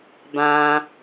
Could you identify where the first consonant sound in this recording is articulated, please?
labial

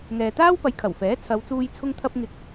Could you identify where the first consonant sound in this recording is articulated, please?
velar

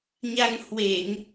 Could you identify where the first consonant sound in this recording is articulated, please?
palatal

